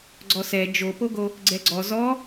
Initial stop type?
click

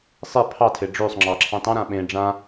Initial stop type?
aspirated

